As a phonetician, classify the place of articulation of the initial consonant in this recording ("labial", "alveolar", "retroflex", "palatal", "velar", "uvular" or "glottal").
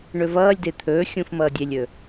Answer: retroflex